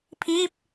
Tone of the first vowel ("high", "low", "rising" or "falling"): falling